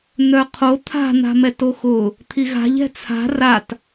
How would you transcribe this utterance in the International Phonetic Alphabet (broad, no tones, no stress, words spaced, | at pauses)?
n̪œqʰo t̪ʰa̤n̪a̤mɛt oxʊ | t̪ʰiɣa̤ʎ ɛ̤t͡sʰa̤ rat